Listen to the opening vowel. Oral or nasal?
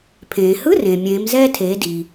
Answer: nasal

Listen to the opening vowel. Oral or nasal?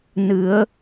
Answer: oral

